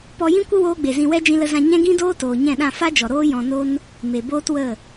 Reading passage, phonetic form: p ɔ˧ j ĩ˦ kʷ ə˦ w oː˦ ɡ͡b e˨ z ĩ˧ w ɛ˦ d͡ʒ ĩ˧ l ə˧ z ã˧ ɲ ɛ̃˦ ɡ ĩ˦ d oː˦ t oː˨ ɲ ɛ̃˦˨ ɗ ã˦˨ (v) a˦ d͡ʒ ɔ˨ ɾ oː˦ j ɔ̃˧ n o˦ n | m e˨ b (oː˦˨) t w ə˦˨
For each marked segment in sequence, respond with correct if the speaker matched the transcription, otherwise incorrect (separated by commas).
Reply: incorrect, incorrect